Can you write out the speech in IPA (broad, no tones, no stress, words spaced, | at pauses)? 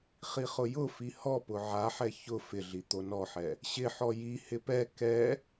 χiχʊjʊfi hɔpʊ ʕaħɛ çʊ fɪɮi t̪onɔħɛ | ɕɪħɔ jihɪ pɛ kɛ